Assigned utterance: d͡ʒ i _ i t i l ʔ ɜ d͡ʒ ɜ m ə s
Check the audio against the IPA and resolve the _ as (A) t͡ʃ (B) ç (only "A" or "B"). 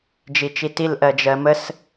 A